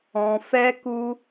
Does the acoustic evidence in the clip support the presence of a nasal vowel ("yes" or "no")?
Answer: yes